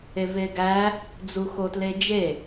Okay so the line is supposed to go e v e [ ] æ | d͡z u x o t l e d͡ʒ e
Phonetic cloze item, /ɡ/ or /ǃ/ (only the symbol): ɡ